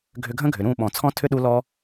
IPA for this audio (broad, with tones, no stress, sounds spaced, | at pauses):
ɡʱ ʏ˧ ɡʱ ə̃˦ ɡʱ ʏ˨ ɾ ũ˦˨ ɓ ɔ̃˨ t͡sʰ ɔ̃˦ tʰ ʏ˦ ɗ u˦ l ɔ˦